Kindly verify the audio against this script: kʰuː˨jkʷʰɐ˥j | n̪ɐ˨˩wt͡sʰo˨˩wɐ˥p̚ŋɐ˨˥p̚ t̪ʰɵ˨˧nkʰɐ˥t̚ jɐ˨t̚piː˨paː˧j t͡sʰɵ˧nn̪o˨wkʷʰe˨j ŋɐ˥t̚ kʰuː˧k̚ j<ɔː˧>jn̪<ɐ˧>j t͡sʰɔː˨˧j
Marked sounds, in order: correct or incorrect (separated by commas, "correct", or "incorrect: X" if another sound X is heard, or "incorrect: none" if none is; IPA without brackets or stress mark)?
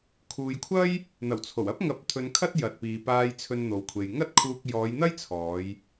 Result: incorrect: ɔː˨˧, incorrect: ɐ˥